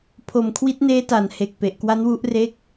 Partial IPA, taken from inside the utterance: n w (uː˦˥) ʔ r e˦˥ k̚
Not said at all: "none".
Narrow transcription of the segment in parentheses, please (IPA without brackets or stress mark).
u˦˥